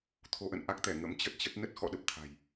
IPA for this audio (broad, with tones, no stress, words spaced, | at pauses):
t̪ʰo˧ʔə̰˧˨nʔa˦˥k̚t̪ɛ˧˩ ŋə̰˧˥mt͡ɕə˦˥t̚t͡ɕə˦˥t̚ nə˦˥t̚xɔ̰˧˨ ɗə˦˥p̚t̪ʰa̤˨˩j